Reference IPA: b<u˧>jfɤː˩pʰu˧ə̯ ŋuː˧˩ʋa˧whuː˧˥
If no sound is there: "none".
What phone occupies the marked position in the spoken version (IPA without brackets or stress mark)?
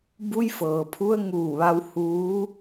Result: u˧